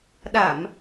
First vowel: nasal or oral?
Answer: oral